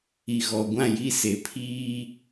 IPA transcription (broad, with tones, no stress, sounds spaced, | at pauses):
i˨ ɣ ɔ˨ ɡʷ ã˦˨ j i˦˨ s e˨ pʰ iː˦